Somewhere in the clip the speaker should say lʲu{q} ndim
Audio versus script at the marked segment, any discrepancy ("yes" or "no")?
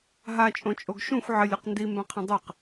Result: no